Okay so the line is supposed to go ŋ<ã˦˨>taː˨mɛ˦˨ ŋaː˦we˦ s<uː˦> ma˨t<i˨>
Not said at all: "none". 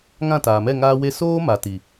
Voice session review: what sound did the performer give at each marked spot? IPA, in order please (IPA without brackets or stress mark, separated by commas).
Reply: ã˦˨, oː˦, i˨